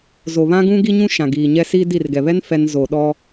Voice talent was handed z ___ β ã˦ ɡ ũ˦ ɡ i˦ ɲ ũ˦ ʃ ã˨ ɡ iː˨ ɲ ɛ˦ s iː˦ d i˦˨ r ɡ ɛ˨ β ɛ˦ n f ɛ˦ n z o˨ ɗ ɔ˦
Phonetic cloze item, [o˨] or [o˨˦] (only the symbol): o˨